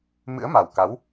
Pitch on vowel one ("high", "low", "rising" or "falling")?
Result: rising